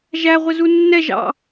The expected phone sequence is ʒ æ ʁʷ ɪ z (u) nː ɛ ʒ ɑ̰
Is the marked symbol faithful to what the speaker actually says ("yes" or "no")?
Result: yes